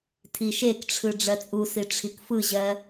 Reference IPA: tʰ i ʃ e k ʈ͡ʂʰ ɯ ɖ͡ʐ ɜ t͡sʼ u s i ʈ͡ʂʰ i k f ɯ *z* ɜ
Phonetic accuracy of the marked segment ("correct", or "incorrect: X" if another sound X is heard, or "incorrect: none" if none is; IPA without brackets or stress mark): incorrect: ʑ